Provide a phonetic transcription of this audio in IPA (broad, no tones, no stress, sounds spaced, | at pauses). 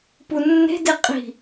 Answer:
p u nː e̤ d e qʼ i̤